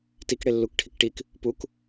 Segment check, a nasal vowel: absent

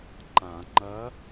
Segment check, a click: present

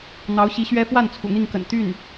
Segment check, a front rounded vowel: present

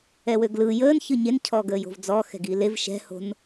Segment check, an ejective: absent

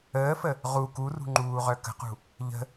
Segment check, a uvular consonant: present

